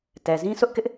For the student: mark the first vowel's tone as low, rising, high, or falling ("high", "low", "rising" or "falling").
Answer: low